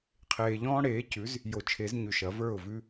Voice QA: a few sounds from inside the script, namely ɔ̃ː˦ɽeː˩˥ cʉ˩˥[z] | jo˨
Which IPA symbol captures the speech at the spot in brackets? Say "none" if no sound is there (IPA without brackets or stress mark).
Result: z